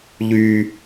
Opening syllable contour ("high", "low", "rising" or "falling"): high